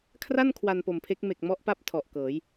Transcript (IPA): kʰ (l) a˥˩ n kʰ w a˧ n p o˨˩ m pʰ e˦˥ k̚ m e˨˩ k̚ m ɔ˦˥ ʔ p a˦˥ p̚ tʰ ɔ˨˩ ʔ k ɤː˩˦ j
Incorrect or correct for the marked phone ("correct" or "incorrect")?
incorrect